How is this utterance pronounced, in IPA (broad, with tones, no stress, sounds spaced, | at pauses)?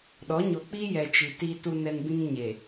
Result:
ɗ ɔ˨˦ ɲ o˨ k͡p i˦ j ɛ˨ t͡ʃ i˨ t iː˦ t u˦ n ɛ˦ n b ĩ˦ ŋ ɲ e˨